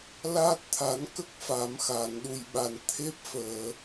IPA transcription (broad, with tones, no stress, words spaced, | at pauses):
laː˦˥t̚t̪ʰa˨˩˦nkə˦˥k̚ fa˨˩˦mxaː˨˩˨nɗu˨˩jɓa˨˩n t̪ʰe˦˥p̚fəː˨˩˨